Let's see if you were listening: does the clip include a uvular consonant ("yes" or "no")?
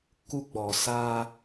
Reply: no